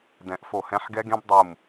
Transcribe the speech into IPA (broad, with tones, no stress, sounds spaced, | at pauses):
d ɛ̃˨˩˦ ʔ f o˧˩ h ɛ̃˦˥ ħ ɡ ɛ˦˥ ɡ ẽ˦˥ b dˤ u˧˩ m